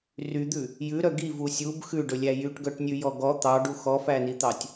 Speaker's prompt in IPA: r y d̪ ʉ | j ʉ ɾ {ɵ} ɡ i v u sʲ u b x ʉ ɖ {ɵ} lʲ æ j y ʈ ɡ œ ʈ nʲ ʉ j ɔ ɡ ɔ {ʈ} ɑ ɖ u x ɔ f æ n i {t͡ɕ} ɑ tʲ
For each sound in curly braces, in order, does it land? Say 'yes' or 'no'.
no, yes, no, no

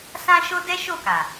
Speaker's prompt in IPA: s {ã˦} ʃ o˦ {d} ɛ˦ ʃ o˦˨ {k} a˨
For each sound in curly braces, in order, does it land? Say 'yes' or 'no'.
yes, yes, yes

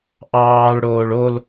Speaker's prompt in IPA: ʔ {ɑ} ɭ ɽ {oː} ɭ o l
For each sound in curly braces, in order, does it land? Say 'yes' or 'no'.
no, yes

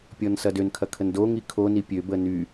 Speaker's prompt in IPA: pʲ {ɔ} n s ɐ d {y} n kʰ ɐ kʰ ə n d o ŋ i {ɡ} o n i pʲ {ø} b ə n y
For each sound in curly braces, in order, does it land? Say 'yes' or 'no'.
yes, no, no, yes

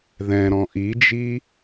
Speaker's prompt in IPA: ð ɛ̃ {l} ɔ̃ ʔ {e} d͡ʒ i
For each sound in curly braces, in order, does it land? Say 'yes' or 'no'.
no, no

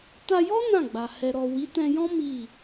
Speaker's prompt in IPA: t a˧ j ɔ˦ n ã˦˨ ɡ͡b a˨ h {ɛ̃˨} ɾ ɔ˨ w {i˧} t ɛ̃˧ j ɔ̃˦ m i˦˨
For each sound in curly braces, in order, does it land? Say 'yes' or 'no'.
no, no

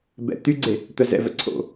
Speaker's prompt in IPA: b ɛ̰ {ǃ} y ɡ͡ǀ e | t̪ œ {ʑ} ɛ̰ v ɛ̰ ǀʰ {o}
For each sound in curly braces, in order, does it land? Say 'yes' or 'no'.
no, no, no

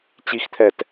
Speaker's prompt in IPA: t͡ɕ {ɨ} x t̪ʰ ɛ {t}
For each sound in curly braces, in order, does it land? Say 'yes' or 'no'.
no, yes

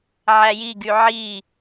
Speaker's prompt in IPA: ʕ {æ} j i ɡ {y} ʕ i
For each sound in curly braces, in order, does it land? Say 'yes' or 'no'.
yes, yes

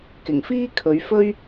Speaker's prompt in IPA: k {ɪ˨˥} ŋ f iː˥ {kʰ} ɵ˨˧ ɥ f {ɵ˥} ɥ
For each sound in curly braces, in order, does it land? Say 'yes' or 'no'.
no, yes, yes

